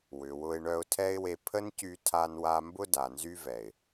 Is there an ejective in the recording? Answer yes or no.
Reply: no